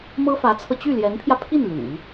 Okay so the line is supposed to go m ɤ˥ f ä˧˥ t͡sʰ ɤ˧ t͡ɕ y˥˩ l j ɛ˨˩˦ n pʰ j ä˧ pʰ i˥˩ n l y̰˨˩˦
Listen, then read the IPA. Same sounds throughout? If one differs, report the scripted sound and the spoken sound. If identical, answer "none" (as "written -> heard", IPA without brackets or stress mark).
ɛ˨˩˦ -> ɛ˧˥